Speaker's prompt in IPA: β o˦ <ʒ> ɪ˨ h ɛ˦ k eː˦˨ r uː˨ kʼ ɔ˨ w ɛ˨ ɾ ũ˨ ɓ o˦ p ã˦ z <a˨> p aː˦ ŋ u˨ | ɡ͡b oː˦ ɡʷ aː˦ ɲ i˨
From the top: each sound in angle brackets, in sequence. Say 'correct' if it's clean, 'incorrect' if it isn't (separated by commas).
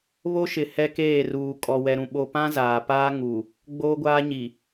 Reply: incorrect, incorrect